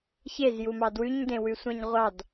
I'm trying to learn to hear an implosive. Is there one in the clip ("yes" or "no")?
no